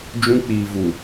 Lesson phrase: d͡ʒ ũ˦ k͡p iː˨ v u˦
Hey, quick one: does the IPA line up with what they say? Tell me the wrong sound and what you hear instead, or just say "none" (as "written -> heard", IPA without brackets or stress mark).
u˦ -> u˨